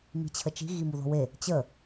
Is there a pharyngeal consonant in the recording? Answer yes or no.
no